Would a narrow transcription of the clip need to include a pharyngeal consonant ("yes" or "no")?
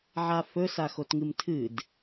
yes